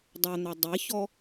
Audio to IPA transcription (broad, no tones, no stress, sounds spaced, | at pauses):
dˤ o n̪ a dˤ e ç ɔ